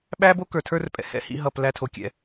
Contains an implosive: yes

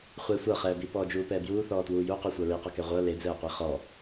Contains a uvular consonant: yes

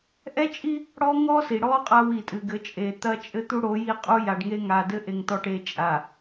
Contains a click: no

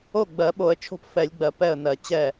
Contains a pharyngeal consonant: no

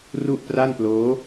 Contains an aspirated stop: no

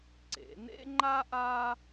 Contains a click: yes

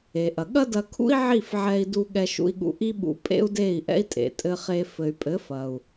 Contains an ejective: yes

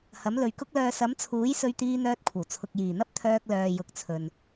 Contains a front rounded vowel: yes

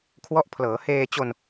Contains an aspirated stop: yes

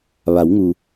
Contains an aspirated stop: no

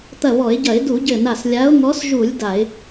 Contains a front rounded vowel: no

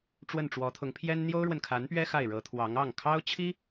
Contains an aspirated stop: yes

